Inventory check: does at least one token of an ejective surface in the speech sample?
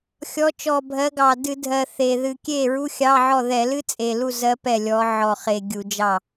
yes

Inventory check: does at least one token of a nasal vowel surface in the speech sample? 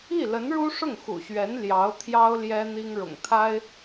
no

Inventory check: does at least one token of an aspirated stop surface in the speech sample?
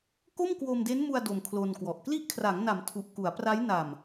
yes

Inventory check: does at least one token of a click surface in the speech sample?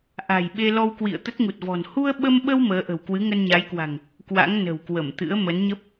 no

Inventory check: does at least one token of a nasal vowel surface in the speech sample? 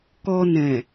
yes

